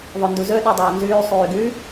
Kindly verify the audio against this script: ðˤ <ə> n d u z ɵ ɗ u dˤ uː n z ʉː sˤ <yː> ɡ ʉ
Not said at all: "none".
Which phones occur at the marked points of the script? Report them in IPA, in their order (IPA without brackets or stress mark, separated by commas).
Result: ɵ, yː